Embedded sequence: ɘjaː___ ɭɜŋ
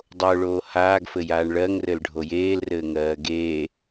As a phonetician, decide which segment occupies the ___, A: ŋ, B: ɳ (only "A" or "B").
B